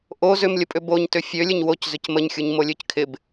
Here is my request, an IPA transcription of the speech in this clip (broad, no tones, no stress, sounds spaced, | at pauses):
ʔ o z ʏ m lʲ ə pʼ ʏ b o ɲ t ʏ fʲ ø lʲ ə ɲ w o c z ʏ c m ə ɲ xʲ u ɲ m o lʲ ø c kʰ ɪ b